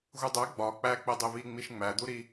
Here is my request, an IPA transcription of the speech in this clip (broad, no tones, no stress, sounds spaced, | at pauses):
ɣ u dˤ æ ɡ͡b ɒ k͡p æ k͡p e dˤ e β i ŋ͡m i ʃ ŋ͡m æ d̪ u ɾ i